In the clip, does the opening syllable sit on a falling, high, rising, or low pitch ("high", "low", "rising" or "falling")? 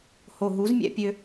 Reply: low